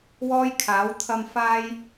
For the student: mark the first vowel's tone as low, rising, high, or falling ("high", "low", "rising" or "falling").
high